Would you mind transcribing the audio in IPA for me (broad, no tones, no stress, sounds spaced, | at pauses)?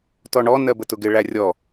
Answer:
t ɔ ɳ ɔ n ɜ b ə t ʊ ɡ ɪ ɭ æ rʲ ɔ